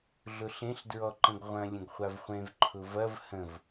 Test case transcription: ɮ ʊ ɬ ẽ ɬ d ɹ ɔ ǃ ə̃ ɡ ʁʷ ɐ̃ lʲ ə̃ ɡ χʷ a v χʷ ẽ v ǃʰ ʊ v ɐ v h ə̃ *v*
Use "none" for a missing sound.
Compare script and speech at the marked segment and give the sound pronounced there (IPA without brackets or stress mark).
v